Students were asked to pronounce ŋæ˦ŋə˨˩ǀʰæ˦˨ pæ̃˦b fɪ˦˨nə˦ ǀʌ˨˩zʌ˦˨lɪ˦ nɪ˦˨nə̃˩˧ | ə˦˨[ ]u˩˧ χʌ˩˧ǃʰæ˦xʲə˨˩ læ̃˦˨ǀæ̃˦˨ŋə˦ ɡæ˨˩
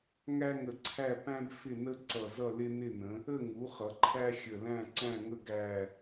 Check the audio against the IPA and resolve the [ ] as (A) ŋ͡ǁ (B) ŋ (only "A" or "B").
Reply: B